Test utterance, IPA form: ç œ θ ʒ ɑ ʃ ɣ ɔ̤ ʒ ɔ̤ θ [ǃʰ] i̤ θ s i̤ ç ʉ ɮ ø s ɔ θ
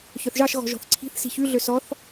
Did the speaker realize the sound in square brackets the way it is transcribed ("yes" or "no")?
no